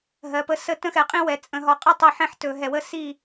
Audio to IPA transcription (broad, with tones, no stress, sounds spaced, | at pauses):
ɦ ɜ˨ p ə˦ s ə˦˨ t ə̃˦ x ɛ˨ qʼ ĩ˦ w ɛ˨ t͡sʼ ə̃˨ ɦ ɒ˨ qʼ ə˦ tˤ i˨ ħ ɛ̃˦ ħ t ɵ˨ ɦ ɛ˨ w ə˦˨ s i˦˨